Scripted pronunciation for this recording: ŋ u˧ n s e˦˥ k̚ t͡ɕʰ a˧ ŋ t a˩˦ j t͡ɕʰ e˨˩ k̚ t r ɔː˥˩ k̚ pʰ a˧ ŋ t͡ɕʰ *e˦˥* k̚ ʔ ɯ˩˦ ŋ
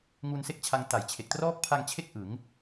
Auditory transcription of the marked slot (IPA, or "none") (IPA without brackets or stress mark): e˦˥